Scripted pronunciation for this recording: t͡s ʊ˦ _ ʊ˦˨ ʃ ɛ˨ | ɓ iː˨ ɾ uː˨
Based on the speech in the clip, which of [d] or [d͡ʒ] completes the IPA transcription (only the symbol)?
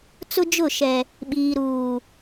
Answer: d͡ʒ